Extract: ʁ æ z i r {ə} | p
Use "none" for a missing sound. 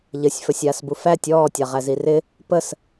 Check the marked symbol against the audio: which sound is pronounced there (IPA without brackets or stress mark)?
ɪ